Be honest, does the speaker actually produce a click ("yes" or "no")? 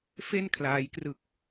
no